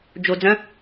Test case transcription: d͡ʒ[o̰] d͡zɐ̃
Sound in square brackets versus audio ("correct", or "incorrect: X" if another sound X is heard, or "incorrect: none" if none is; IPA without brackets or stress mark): incorrect: o